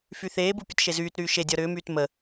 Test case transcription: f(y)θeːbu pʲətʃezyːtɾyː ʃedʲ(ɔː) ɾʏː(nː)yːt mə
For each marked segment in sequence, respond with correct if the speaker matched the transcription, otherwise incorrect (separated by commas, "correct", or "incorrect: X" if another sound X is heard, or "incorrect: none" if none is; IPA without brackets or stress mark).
correct, incorrect: ɔ, incorrect: m